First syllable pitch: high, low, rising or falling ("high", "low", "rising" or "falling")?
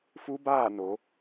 rising